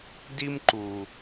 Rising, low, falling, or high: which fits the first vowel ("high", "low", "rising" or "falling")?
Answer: high